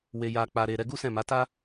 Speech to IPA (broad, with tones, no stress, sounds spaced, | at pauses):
w e˧ j a˧ k͡p a˧ ɾ e˧ ɾ ɛ˧ ɡ u˦ s ɛ̃˦˨ m a˨˦ t a˦